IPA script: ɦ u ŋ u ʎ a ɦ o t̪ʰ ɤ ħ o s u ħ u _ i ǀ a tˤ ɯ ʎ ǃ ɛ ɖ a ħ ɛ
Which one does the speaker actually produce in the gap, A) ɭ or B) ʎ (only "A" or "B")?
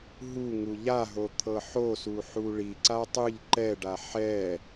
A